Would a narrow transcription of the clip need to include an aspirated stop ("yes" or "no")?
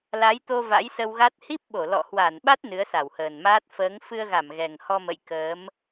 no